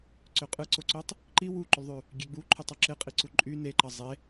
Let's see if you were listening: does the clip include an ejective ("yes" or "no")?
yes